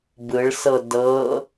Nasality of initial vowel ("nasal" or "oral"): oral